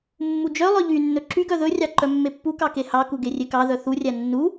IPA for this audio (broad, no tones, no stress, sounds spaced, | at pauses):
mː u d͡ʒ œ lˠ œ ʎ y nː ɵ ǁ y ɡ œ ð ɵ rʲ ɑ ǃ œ mː e pː u k ɑ k e h ɑ k u ɡ e rʲ e k ɑ ð œ θ u rʲ æ nː u